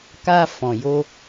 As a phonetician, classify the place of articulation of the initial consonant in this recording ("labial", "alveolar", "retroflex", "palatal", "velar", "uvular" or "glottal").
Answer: velar